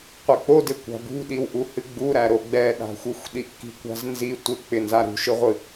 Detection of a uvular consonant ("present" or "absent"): present